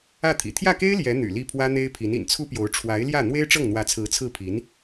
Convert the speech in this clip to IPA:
ä˥˩ t̪ʰ ḭ˨˩ t̪ʰ j ä˥˩ k e˥ ɪ̯ l j ɛ˧˥ n̪ y̰˨˩ l i˥˩ pʰ w ä˥ n̪ e˥ ɪ̯ pʰ i˧˥ n ḭ˨˩ n t͡sʰ u˥ p j o˧˥ ʊ̯ ʈ͡ʂʰ w a˧˥ ɪ̯ l j ä˥˩ n̪ w e˥ ɪ̯ ʈ͡ʂ ɤ˥˩ ŋ n̪ w ä˧˥ t͡sʰ ɹ̩˧˥ t͡sʰ ɹ̩˥˩ pʰ i˧˥ n

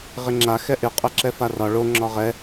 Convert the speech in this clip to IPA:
ʁ ɪ ŋ͡ǁ a x ɛ ʔ ɪ qʼ ɛ ǁ ɛ f a r ɒ ɭ o ŋ͡ǁ ɒ ʁ ɛ

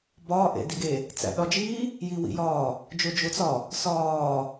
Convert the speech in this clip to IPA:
b ɒː ʔ ḛ d i ɡ e | t͡s æ̰ ɗ ɒ d͡ʒ iː | j i w ḭ j ɒː | d͡ʒ o d͡ʒ o t͡s ɒ | s ɒː

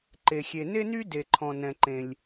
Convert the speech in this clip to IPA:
ǃ e˩ xʲ e˩ n e˥ n y˥ d e˩ ǃʰ ɔ̃˩ n ɛ̃˩ ǃ ẽ˩ lʲ

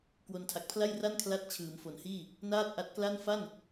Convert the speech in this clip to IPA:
k w o˧ n tʰ a˨˩ k̚ pʰ l a˥˩ j r a˥˩ n kʰ l a˥˩ t̚ t͡ɕʰ ɯː˩˦ m f o˩˦ n h iː˥˩ | n aː˥˩ t̚ ʔ a˦˥ t̚ k l a˥˩ n f a˥˩ n

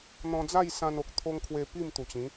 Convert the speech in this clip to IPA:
n̪ ɔ̃˧ d͡z a˥˧ j s ã˧ n o˨ k̚ t̪ʰ o˧ ŋ kʰ w e˧ p i˥˧ m t̪ u˨˩ t͡ɕ ĩ˨˦

